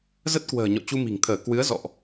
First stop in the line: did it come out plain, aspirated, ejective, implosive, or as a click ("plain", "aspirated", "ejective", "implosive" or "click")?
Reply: plain